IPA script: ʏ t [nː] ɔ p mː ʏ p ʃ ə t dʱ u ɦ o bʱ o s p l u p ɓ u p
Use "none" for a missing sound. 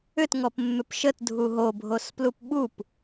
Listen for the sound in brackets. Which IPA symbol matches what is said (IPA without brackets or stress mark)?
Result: ŋ